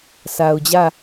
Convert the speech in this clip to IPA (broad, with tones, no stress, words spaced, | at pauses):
sʰa˨ʊ̯d͡ʑä˦˨